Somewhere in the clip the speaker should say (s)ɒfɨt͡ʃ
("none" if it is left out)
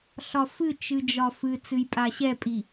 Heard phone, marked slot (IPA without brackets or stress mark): ɬ